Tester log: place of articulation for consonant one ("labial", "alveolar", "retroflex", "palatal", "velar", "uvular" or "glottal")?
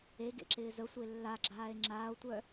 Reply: velar